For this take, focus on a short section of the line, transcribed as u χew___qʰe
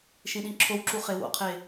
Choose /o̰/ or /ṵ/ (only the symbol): o̰